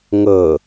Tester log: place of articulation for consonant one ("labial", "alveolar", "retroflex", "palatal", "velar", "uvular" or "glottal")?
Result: velar